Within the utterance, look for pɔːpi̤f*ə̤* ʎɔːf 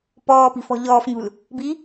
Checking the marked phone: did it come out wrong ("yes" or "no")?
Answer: yes